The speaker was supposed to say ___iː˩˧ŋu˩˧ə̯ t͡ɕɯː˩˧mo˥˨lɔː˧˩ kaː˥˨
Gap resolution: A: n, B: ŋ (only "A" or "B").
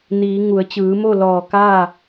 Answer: A